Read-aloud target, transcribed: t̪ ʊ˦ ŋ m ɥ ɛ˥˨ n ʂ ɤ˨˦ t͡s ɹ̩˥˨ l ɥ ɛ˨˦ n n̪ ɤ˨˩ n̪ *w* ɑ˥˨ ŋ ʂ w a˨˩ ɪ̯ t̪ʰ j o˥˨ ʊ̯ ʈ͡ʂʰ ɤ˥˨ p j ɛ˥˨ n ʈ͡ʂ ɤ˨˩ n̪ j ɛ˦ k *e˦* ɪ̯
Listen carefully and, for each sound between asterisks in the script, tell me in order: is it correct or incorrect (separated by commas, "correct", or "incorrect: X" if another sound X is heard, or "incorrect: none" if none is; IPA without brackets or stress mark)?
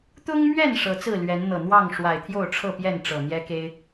correct, correct